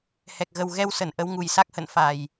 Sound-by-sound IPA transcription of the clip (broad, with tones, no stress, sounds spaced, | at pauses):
h ɛ˨˩ k̚ ɣ ə˨˩ w ɣ ɛ˧ w s ə˧˩ n ʔ ə˨˦ w ŋ u˨˩ j s a˦˥ k̚ h ə̰˧˨ n f a˨˩ j